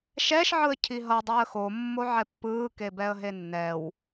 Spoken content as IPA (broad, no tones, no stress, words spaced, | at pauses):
ʃɛʃ ʕɯə̯cʰiɦʌ dˤaə̯xo mːoʕɛpːɯː kebɛə̯ɦenːɛw